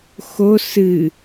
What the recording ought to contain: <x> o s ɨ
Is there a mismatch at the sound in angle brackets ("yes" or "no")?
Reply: no